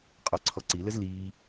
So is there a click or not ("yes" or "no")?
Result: yes